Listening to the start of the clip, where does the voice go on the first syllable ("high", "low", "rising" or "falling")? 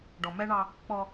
low